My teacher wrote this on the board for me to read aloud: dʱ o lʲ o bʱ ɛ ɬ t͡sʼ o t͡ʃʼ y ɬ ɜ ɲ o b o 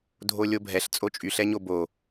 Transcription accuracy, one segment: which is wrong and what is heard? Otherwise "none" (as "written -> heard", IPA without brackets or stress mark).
ɜ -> ɛ